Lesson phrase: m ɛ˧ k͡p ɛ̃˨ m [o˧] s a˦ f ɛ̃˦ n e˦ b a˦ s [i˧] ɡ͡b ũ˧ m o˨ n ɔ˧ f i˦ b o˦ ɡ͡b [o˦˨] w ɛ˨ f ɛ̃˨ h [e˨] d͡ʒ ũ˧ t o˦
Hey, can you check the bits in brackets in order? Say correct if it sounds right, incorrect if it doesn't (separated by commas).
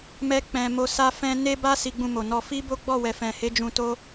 correct, correct, incorrect, incorrect